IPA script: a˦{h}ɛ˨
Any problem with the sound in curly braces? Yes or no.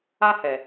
no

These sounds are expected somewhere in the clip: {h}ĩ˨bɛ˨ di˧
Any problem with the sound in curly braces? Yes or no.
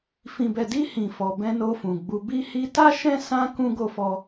yes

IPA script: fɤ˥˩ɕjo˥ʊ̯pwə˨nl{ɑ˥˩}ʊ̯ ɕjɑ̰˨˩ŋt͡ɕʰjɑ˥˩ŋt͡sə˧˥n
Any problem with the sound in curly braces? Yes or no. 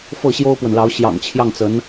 yes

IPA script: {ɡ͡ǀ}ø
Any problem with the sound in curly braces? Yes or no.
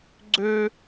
no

